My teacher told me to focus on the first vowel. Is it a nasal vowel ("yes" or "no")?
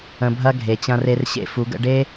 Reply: yes